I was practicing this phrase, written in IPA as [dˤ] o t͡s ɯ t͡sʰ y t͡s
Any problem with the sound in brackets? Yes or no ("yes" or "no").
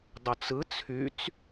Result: no